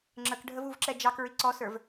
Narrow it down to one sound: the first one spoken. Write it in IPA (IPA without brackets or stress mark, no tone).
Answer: ŋ͡ǁ